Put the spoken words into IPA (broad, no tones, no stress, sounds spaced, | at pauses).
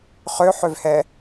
χ ø ħ ø v h ɛ